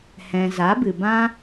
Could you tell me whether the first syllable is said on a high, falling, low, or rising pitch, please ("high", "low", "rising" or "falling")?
low